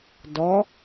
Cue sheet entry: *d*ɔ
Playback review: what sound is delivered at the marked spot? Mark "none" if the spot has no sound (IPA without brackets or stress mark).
d